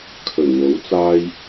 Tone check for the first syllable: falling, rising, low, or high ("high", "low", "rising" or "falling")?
low